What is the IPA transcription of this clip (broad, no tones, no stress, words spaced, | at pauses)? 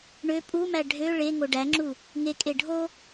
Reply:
ɳø pʼumæ ɖʱø ɭeŋo ɖæŋ͡ǁu | ŋekʼe ɖʱo